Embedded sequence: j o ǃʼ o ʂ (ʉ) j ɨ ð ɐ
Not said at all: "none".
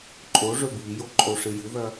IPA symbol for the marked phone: ɨ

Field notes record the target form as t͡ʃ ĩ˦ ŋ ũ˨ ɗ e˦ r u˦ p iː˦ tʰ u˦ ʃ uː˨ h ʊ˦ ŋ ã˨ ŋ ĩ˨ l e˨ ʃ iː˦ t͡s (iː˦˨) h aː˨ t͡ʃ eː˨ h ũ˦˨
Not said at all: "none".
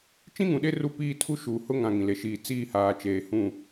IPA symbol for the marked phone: iː˦˨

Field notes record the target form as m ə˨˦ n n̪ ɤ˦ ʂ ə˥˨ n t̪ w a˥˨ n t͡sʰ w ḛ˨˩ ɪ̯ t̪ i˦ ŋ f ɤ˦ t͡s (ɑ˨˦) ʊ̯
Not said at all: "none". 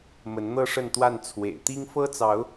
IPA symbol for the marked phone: ɑ˨˦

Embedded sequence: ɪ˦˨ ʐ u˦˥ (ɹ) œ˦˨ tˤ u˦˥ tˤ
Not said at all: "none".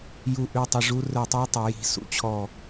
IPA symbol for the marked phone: r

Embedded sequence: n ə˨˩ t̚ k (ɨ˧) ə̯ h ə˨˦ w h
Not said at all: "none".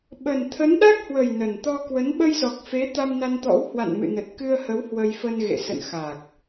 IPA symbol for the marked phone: ɨ˧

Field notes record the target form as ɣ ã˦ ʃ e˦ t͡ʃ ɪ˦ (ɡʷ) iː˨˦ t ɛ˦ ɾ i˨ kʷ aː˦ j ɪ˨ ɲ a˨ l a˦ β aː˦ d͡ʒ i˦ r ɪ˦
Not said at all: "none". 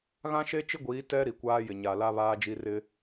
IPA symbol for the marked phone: ɡʷ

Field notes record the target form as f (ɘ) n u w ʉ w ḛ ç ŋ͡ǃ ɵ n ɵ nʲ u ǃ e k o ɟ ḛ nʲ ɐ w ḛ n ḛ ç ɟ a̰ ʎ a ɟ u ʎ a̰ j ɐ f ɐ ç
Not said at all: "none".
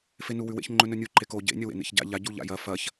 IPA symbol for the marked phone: e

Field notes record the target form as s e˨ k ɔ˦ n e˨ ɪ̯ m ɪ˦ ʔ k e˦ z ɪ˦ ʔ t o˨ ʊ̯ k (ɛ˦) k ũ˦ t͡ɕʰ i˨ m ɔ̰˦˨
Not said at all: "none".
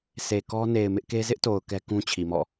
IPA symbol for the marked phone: ɛ˦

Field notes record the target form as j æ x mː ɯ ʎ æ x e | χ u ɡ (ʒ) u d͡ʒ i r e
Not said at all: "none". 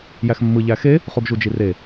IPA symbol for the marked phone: ʒ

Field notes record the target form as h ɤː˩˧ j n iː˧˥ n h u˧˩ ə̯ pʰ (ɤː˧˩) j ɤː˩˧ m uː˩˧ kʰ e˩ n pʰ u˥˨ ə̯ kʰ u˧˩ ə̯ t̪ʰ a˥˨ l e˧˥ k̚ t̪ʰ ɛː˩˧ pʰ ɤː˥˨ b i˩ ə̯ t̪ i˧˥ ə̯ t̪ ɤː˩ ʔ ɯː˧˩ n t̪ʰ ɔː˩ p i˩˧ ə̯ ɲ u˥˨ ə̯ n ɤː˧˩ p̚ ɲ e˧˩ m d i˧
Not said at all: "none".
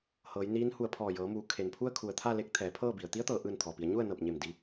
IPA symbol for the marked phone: ɔː˧˩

